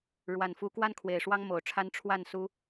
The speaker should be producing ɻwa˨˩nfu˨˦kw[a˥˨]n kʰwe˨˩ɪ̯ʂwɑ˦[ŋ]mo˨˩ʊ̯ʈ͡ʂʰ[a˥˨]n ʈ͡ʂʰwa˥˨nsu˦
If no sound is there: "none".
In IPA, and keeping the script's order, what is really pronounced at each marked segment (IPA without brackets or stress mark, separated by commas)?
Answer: a˦, ŋ, a˦